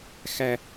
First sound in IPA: x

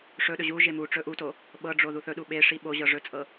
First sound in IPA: ʂ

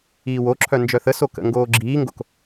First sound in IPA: iː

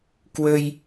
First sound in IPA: k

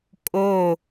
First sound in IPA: kʼ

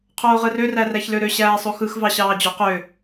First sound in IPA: qʰ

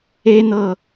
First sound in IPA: e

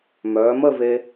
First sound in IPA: m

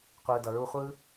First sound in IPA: qʷ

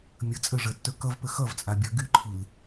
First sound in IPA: mʲ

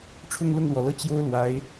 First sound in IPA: ʈ͡ʂʰ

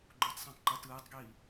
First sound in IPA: ɡ͡ǃ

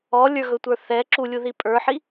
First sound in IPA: ɔ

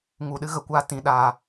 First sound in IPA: ŋ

